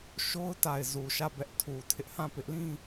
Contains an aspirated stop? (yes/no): yes